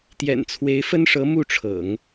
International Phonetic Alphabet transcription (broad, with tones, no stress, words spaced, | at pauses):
t̪jɛ̰˨˩nt͡sʰwe˧˥ɪ̯fə˥nʂɤ˧˥ mu˥˩ʈ͡ʂʰɤ̰˨˩˦ŋ